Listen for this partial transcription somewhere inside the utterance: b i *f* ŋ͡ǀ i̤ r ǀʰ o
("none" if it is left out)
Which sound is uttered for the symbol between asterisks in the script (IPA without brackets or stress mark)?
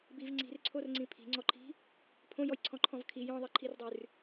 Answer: v